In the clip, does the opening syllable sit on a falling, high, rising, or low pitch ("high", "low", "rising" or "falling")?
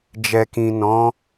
low